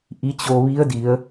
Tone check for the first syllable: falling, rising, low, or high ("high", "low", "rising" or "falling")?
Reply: rising